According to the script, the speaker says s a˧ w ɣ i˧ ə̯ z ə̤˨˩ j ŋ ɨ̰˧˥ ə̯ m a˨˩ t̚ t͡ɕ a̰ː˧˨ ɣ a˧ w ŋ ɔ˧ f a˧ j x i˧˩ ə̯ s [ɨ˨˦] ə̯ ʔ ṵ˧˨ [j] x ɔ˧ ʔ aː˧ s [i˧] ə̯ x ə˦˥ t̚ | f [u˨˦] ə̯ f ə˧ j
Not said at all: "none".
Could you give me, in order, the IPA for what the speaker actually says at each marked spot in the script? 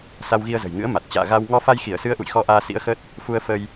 ɨ˨˦, j, ḭ˧˥, u˧

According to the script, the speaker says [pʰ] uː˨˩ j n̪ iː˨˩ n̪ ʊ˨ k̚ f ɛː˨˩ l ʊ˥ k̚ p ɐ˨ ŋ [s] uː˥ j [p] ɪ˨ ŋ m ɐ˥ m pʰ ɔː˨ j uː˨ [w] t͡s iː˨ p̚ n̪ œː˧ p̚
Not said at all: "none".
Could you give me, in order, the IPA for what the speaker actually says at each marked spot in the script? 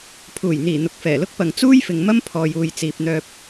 pʰ, t͡s, f, j

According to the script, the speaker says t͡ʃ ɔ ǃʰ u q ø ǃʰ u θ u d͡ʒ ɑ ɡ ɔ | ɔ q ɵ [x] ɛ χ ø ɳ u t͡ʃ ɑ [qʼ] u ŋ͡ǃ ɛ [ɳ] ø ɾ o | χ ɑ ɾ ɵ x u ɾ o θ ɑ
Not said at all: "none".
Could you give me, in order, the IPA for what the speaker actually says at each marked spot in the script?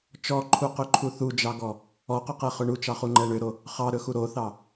q, χ, ɳ

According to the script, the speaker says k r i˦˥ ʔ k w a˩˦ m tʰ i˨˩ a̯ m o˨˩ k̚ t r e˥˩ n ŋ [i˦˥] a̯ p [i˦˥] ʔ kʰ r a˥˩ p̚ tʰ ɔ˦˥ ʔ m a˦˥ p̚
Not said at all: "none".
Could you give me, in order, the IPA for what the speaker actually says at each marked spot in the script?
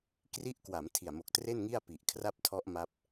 i˥˩, i˨˩

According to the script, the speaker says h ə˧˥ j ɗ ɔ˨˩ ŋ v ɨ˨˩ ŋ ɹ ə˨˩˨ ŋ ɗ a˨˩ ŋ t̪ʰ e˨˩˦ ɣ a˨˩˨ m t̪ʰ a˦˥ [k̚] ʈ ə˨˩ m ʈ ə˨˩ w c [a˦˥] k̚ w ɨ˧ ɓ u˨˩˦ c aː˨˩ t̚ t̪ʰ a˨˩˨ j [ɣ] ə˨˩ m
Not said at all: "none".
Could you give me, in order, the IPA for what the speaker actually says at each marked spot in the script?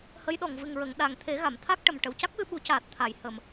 k̚, a˦˥, h

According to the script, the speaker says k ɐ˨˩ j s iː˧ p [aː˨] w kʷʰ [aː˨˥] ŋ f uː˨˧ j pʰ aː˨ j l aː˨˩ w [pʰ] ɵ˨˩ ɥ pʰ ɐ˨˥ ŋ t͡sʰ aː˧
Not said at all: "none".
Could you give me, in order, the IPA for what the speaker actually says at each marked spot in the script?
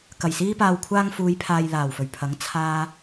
aː˨, aː˧, f

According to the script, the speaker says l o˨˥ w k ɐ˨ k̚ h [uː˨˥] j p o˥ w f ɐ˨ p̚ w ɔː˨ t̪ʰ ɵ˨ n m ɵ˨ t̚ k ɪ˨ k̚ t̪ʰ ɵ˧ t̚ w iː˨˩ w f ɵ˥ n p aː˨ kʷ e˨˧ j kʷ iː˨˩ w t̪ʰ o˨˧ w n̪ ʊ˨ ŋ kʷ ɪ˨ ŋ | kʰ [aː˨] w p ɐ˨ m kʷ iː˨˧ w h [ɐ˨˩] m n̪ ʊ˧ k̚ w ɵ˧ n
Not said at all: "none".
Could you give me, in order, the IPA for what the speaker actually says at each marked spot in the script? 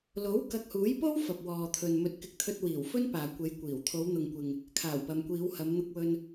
uː˨˥, aː˨˩, ɐ˨˧

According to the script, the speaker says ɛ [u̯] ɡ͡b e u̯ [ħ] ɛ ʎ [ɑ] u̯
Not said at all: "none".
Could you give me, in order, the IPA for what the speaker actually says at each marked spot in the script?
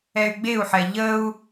y̯, ħ, ə

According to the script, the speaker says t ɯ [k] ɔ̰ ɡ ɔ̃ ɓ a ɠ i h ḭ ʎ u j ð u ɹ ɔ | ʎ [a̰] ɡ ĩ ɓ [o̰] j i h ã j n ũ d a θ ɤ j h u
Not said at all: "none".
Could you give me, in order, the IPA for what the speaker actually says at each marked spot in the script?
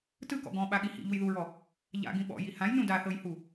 k, a̰, ɔ̰

